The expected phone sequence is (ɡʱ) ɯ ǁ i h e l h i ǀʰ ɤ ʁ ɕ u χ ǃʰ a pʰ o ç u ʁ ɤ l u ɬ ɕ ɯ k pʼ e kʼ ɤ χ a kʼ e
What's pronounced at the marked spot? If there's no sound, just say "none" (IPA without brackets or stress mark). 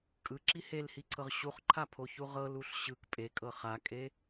kʼ